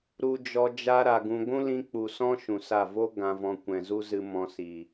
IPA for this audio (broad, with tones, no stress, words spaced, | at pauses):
ɾu˧d͡ʒɔ˧ d͡ʒa˧ɾa˨ ɡũ˧ ɡʷũ˦lĩ˧ k͡pu˨sɔ̃˦ ʃũ˨sa˦˨ vo˦ ɡã˧vɔ̃˧ kʷɛ̃˨zu˦zɨ˧ mɔ̃˧si˨